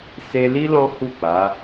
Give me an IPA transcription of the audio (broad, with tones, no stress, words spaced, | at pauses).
se˧ li˦ lɔ̃˦hu˦˨k͡pa˨˦